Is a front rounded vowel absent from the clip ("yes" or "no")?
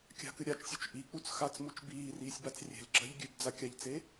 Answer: yes